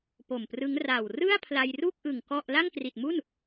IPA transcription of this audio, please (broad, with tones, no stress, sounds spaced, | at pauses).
p o˨˩ m p r ɯ˦˥ ŋ r a˨˩ w r ɯ˥˩ a̯ pʰ l a˧ j r u˥˩ k̚ ʔ ɯ˨˩ ŋ k ɔ˥˩ ʔ l a˥˩ ŋ k r i˨˩ t̚ m u˥˩ n